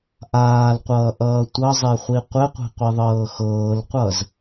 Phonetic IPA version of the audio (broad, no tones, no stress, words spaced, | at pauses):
ʔaːlqʷʌːʔʌː tʷʌzˤeχʷi qʷɘqʷe̤qʷiðˤɤː xɤːlqʷʌz